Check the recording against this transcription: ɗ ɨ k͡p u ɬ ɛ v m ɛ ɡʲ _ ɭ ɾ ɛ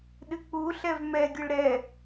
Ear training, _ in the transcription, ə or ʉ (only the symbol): ə